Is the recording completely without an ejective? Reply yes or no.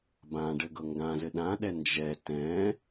yes